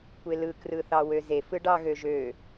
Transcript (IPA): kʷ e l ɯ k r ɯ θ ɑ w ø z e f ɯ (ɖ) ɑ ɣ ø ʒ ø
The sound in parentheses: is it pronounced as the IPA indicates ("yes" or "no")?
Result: yes